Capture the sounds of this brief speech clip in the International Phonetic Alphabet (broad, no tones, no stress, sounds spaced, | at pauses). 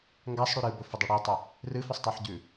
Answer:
ŋ ɡ a sˤ ɽ ʉ ɾ ɨ b ɵ f ɵ dˤ ɨ ɽ i tˤ ɵ | r ɨ f ɵ sˤ tˤ o ħ ɟ ʉ